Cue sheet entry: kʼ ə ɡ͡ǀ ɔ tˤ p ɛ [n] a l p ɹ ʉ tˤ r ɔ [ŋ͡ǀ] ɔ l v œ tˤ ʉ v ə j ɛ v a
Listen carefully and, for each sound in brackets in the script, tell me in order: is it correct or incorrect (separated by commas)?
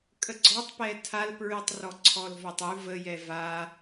incorrect, incorrect